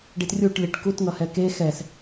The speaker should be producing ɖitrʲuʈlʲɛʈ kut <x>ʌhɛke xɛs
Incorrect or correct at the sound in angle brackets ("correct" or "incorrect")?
incorrect